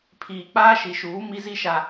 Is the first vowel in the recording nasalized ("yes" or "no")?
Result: no